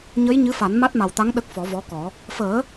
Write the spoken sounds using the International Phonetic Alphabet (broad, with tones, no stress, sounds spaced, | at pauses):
ɲ ə˧˥ j ɲ ɨ˧˥ f a˨˩˦ n m a˦˥ t̚ m a˨˩ w t̪ a˧˥ ŋ ɗ ə˦˥ k̚ f ɔ˨˩˦ v ɔ˧˥ k ɔ˨˩˦ | f əː˨˩˦